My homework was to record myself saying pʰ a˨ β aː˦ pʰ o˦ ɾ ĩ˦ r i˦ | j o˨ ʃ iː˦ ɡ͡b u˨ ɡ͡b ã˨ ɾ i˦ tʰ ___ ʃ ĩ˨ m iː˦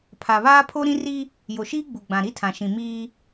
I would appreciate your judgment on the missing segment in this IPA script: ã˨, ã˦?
ã˨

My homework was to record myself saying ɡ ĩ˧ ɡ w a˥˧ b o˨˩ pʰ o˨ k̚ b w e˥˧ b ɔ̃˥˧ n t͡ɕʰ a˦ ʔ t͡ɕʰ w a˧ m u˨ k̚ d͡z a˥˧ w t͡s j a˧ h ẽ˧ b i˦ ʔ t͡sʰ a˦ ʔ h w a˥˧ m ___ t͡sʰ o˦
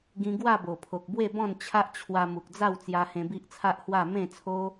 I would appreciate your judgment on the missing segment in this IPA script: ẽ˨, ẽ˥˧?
ẽ˥˧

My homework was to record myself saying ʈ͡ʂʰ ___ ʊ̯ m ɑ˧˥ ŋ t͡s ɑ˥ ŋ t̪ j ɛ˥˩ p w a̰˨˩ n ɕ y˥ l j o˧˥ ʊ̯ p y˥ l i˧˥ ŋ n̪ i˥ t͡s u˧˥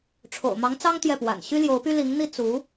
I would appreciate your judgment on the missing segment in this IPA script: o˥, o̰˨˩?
o̰˨˩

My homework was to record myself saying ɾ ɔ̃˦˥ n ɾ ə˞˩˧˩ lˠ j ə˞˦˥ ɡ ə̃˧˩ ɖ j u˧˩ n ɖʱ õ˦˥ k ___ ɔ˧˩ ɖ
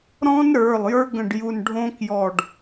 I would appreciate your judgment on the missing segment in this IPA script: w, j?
j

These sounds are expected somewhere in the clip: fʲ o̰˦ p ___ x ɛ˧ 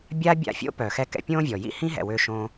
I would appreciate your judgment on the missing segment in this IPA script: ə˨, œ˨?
œ˨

